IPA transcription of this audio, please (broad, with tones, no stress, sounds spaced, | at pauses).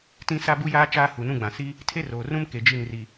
t ĩ˦ s a˦ b u˦ j aː˦ t͡ʃ aː˦ h u˨ n ũ˦ ɡ͡b ã˨ s i˦ | tʰ e˦ r oː˨ r ũ˦ m k e˨ d͡ʒ i˦˨ n r i˨